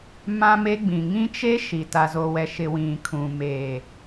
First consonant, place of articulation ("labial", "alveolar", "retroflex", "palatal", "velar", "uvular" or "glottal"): labial